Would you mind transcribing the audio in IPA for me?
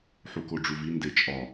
ħ u k o ɖ͡ʐ u v i n d e t͡ʃʼ ɒ

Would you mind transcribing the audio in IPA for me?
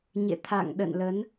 ɲ ḛ˧˨ t̪ʰ a̰˧˨ ŋ ɗ ə̰˧˨ n l ə˨˦ n

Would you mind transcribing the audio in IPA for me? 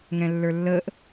ŋ ɛ̃ lː ə˞ lː əː ʔ

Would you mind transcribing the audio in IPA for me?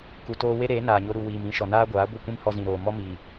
k u˨ t oː˧ w e˦ ɾ eː˨˦ n aː˨ ɲ o˧ ɾ u˨ w iː˨ m ĩ˧ ʃ ɔ˨ n aː˦ ɡʷ aː˨˦ ɡʷ ə˦˨ kʷ ĩ˦ m h ɔ˧ z ĩ˨ ɾ oː˨ m ɔ˦ m iː˨

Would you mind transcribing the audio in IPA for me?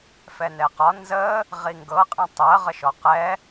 f ɛ n ɛ q ɒ n z ə | ʁ i ŋ ɡ ɤ qʼ ɛ̃ tˤ ɜ ʁ ə ʃ ɔ q ɛ

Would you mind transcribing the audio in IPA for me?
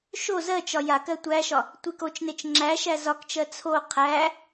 ʃ o z ɜ t͡ʃ ɒ j a k ɜ tʷ æ ʃ ɒ | tʷ i k o t͡ʃ n e t͡ʃ ŋ͡ǁ æ ʃ æ z ɒ k t͡ʃ ɜ t͡sʰ o qʰ æ

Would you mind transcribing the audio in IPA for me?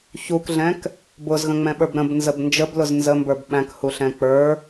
ç u k ɮ ɛ̃ k | b ʊ z ɣ ə̃ ŋ͡m ɛ̃ ɓ ə˞ b ɾ ə̃ b n z ə b n d͡ʒ ə b l ʊ z n z ə m b ə˞ b ɓ æ̃ k h u ɬ ɛ̃ k͡p ə˞

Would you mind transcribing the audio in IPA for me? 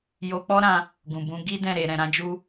j o˧ k͡p ɔ˦ ɾ ã˧ | ɡ ũ˨ b ũ˨˦ ɡ i˦ d ɛ̃˦˨ ɾ e˨ ɾ ɛ̃˨ ɾ ã˨˦ d͡ʒ u˦

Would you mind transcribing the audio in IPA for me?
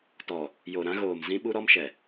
t ɔ˨ | j o˨ ɾ ã˦ ɣ oː˨ m z ĩ˦ ɓ u˦ ɾ ɔ˦ m ʃ ɛ˨

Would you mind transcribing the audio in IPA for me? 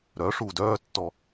ɾ œ ʂ u d œː tː ɔ

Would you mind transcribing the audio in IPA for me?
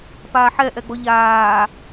p aː ħ ɛ ʔ ɛ ɡ͡b ɔ ʎ aː

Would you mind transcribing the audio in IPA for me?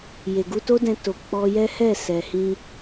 j e˨ ɡ u˧ t o˦ d ɛ̃˧ t o˨ k͡p ɔ˧ j ɛ˦ h ɛ˦˨ s ɛ˨ h ĩ˧

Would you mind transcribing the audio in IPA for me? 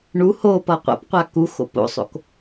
ɳ u h o p ʌ qʷ a̰ p qʷ a k u x o̰ p o̰ sˤ o̰ k

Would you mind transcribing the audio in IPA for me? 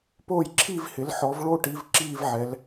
p oː˥˧ j ǁʰ iː˥˧ v h ɪ˨˦ l ħ ɔ˨˦ v ɭ o˥˧ ʈ i˨˦ v ǁ iː˥˧ v ʕ ɛ˨˦ l

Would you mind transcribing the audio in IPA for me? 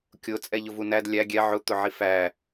kʲ ʊ t͡sʼ ɛ ʎ ʊ v u n æ d lʲ æ ɡʲ ɛ ʕ ʊ t̪ ʊ ʕ i f æ

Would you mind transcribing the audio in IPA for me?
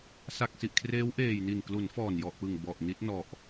s a˨˩ k̚ s i˨˩ ʔ kʰ r eː˦˥ w ʔ eː˨˩ j n i˨˩ n k l u˩˦ n f ɔː˨˩ n j ɔ˨˩ ʔ p ɯ˨˩ ŋ b ɔ˨˩ ʔ n i˦˥ t̚ n ɔ˨˩ ʔ

